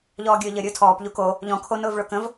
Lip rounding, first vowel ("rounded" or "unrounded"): rounded